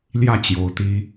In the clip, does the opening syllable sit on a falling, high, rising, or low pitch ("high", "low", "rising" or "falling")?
falling